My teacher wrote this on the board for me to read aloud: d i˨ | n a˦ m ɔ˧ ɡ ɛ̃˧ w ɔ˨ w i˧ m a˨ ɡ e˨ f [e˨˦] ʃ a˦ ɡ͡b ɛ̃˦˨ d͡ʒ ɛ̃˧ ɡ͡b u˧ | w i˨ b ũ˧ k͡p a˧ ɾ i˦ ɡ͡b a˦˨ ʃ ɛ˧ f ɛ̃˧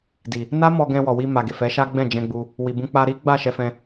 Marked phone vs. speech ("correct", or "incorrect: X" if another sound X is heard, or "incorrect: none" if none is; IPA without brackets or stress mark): incorrect: ɛ˨˦